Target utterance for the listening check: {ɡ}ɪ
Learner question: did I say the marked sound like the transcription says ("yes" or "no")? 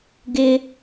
yes